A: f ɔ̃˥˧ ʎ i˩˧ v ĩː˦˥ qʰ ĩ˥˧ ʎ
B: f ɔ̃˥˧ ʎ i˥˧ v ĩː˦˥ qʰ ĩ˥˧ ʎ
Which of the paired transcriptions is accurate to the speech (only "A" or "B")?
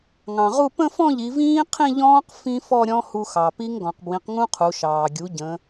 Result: A